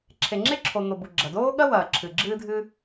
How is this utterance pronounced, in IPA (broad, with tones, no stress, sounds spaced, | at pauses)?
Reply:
ǁʰ e˩ ŋ͡ǁ e˥ ǁʰ o˩ n̪ o˩ b u˩ ɡ͡ǁ ɐ˩ d oː˥ ɠ ɐ˥ w ɐː˩ ǁʰ ɨ˩ ɡ͡ǁ ɨː˥ dʱ ɨ˥